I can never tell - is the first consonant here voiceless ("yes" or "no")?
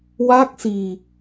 no